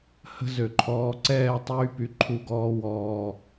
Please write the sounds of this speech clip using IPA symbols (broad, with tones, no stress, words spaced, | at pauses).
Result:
hə̤˦zø˨ ǃʰɔː˨ǀɛː˦˨tˤyː˧ py˨ǃʰu˧ɡɔː˧ wɔː˨